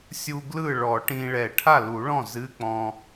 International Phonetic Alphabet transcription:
sʲu˧ɡlɯ˥˩ ɭɔ˨˩˦ʈĩ˧ɭɛ˨˩˦ ʈʰa˥˩lu˨˩˦ɭɔ̃˥˩ zɨ˧˥˧k͡pɔ̃˧

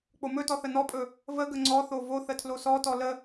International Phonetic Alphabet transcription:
k͡pomɵtɔ θənɔpʼɵ | vəɡə ŋ͡ǀɔθo vo θətʰlosɔtɔ lə

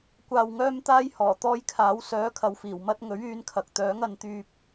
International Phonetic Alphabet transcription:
kʷaː˨wŋœː˧mt̪aː˧j hɔː˨˩t̪ɔː˧jkʰaː˨˥w sœː˨˥kʰɐ˨wfiː˨˩wmɐ˧t̚ ŋɵ˨˥ɥyː˨˧nkʰɐ˨k̚t̪œː˨˥ŋ ɐ˨˧nt̪yː˧p̚

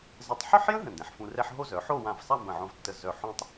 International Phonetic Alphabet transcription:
zə˧˩tˤ ħœ˥˧ħjə̃˥ ɦə̃˧˩ndɛ̃˩˧ħfũ˧rɛ˥ħ ɦo˥zœ˩˧ ħo˥˧wã˧˩vsˤa˥˧ mbə̃˧˩ʕõ˧vtːə˧˩ zœ˧˩ ħõ˥tˤ

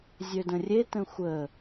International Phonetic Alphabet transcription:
zʲødə̃rʲe tə̃xʷə

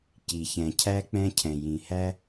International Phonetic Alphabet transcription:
ci˨çɛ̃˨cʰæ˦ k͡pɛ̃˦ cʰɛ̃˨jĩ˨hæ˦

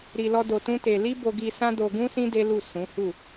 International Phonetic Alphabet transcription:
ɾi˧lɔ˦ do˧tũ˦te˧ li˦bo˧ɡi˧ sã˦do˧ɡũ˦sĩ˦ de˦lu˦˨ sũ˨˦hu˦˨

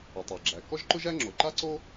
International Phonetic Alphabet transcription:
ə˩tˤæ˩ ɡ͡ǁæ˩ kɔ˥ʒǃʊ˥ʒæ˥ŋ͡ǁo˩ ǃa˥ǀo˥

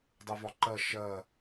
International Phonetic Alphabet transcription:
dˤɯvɒǃɜ ʃɜ

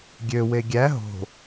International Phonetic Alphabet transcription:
ɡʲøwe ɡʲæ ɦo̤

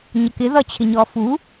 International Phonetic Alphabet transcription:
ɲʌkɪ ðʌt͡ɕʰɪɲɔː fu

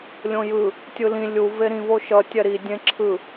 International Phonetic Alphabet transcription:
lʲõjɯ | tʲɯlĩ lʲu veɾĩvo ʃʌ tʲɛɾi dʲẽ ǁʰɯ

